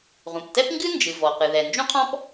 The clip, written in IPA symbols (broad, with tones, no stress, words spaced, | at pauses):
ʁũ˩ptɛ˥pŋɡɨ˥nd͡ʒɨ˩ vɔ˩qɨ˩ðɛ˩ nd͡ʒũ˥qʰɔ̃˥p